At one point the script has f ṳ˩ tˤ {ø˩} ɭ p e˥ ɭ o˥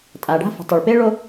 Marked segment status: incorrect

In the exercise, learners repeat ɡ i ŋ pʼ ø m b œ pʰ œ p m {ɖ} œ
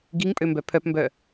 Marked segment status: incorrect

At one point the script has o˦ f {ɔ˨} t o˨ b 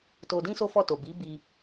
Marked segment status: incorrect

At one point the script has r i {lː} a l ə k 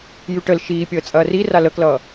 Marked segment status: incorrect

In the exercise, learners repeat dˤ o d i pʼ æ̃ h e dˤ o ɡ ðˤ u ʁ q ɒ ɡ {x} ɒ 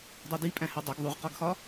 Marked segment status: correct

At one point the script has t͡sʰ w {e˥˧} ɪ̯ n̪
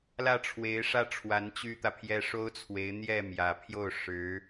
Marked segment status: incorrect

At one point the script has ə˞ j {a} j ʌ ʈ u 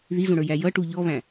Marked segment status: incorrect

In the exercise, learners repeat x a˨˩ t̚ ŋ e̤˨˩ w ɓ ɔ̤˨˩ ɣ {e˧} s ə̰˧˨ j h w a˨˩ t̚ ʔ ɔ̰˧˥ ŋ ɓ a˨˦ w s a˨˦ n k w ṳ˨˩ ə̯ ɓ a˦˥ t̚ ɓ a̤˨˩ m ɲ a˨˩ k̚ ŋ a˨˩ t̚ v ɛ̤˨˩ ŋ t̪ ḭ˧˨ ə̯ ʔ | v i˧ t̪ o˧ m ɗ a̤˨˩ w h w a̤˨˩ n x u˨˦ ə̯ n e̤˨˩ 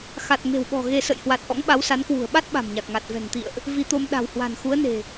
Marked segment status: correct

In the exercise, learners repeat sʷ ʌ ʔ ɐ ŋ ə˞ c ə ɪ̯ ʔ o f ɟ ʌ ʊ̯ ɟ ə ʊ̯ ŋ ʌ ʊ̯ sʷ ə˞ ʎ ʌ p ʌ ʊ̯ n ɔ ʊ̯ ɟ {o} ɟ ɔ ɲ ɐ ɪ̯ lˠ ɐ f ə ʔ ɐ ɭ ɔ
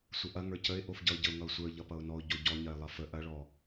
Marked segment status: correct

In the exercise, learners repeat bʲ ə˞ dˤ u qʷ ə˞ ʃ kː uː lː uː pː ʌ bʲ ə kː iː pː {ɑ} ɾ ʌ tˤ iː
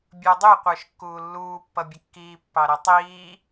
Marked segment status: correct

